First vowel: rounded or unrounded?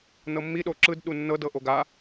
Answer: unrounded